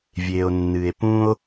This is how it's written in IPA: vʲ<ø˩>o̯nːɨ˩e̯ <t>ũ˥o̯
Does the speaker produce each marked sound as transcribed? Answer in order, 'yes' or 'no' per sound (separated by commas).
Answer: no, no